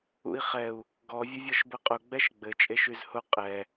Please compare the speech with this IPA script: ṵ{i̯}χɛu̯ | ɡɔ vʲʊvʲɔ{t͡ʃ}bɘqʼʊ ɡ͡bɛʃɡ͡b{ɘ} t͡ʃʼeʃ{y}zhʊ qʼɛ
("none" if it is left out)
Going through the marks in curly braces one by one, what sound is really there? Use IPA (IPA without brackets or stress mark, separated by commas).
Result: i̯, ʃ, ɘ, y